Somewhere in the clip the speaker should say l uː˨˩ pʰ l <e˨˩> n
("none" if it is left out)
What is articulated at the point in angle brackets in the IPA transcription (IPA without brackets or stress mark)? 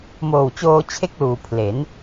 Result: e˩˦